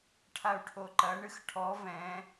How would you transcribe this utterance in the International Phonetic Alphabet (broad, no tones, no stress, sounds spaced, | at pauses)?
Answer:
ʈʰ a u̯ ʈʰ o ǃ ɐ ɳ ɨ x ʈʰ ɔ v ɛ̃